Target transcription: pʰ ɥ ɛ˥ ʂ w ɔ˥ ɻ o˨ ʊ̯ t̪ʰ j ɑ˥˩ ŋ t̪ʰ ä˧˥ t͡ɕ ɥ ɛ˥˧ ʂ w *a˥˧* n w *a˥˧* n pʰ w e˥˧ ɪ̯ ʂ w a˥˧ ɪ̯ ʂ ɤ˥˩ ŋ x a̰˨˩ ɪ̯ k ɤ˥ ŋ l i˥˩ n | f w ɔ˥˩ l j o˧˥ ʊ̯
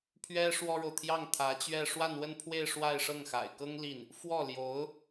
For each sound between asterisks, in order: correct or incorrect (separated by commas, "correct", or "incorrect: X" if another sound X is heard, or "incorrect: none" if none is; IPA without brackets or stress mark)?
correct, incorrect: ə˥˧